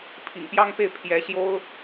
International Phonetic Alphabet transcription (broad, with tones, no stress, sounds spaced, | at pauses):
pʰ ḭ˨˩ ŋ p j ɑ˥ ŋ p e˥˩ ɪ̯ pʰ j ɛ˧˥ ɕ j o˥ ʊ̯